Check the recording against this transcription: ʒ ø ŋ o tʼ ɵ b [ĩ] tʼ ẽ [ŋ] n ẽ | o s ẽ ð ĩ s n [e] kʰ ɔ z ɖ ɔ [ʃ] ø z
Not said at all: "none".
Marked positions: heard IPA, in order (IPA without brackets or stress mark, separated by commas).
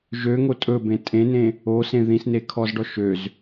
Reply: ẽ, none, e, ʃ